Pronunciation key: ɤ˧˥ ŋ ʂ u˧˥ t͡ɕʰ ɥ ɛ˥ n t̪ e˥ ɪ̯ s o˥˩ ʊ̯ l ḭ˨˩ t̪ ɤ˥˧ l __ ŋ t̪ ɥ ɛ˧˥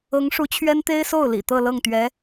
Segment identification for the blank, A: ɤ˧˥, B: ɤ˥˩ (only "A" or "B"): B